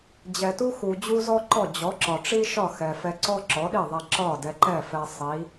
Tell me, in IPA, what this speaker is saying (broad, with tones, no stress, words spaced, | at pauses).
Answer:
d͡ʑɛ˩tu˥xu˩ d͡ʑu˥zɔ˥ǃɔ˥˩ d͡ʑɔ˩˥ǁɒ˩ʈ͡ʂi˥ ʃɒ˥˩xɛ˩fɛ˧ǀɔ˥ ǁɔ˩˥ɗi˥˩ðˤɛ˧ ǁɒ˥˩dɛ˧ǃɛ˥˩fɛ˧ sˤi˩˥